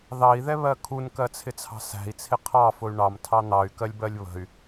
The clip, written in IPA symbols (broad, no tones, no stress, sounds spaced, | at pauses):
ð ɑ i̯ ð ɛ β ɜ kʰ u n k ɜ t͡sʰ ɪ t͡sʰ ɑ̤ s æ̤ i̯ t͡sʰ ɪ qʰ ɑ f ʊ y̯ ɳ ɑ m tʰ ɑ n̪ ɑ y̯ k ɜ lʲ b ɜ lʲ β ə̤ y̯